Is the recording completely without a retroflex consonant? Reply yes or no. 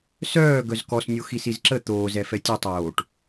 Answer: no